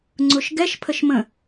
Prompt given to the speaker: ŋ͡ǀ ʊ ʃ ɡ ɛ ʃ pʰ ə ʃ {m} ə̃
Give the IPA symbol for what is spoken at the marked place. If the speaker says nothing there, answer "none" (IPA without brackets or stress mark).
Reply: m